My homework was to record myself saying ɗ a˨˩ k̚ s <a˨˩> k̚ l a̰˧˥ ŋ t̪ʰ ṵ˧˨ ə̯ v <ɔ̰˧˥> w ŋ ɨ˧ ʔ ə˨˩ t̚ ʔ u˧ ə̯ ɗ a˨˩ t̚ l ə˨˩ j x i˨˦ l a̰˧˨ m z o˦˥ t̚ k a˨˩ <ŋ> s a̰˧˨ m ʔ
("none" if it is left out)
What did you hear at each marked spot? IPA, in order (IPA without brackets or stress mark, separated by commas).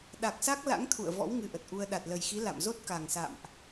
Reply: a˦˥, ɔ̰˧˥, ŋ